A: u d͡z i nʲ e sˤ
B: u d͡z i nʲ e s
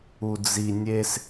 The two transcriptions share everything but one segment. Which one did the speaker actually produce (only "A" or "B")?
B